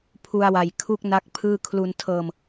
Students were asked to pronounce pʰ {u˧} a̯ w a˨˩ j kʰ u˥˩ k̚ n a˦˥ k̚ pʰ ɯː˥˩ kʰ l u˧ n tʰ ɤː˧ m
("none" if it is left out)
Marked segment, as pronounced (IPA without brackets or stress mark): u˧